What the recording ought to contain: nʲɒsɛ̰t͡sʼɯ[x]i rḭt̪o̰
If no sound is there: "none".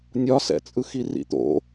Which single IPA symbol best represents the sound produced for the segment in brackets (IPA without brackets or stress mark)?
x